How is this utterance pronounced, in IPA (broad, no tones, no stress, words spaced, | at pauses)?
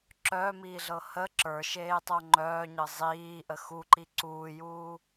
ǁœːmiːɮɤ hə ǁə˞ʃeː tˤoŋ͡ǃœːɲɤ zˤiː ʔəxu ǃiǀuːjuː